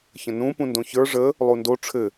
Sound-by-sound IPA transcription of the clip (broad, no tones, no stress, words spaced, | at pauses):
çə̃nũ pũndõçə˞ ʐə | lˠundo ʈ͡ʂʰɘ